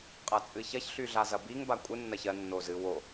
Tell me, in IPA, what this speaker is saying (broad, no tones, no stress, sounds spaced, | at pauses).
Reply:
qʼ ɐ t͡sʼ ɨ ç ɐ ç ɬ y ɮ a z ɐ b i ŋ b a kʷʼ ɨ nː ɐ ç ɜ nː o z ɨ w o